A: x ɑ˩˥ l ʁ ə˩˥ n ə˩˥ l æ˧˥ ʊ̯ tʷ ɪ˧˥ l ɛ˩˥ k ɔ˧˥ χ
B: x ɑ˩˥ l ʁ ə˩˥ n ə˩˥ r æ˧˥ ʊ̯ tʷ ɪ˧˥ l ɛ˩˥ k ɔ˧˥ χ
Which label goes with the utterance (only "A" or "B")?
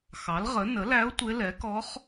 A